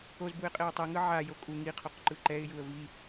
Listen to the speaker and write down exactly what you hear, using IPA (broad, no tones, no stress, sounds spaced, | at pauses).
o z b u ɪ̯ qʼ e ʊ̯ tˤ i ŋ ɯ ʕ a j o kʼ u ŋ i qʰ o q ǃ ɯ ǃ ɛ ɪ̯ j u ə̯ v i